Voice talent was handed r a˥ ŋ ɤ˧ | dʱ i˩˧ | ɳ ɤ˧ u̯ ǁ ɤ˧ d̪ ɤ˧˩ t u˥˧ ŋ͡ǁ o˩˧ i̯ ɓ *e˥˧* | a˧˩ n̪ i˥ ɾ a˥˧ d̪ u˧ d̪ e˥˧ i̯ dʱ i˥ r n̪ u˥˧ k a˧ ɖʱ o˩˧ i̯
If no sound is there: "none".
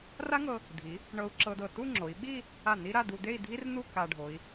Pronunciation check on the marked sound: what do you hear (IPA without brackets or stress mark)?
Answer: i˥˧